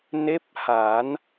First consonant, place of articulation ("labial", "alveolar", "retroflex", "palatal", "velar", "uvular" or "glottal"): alveolar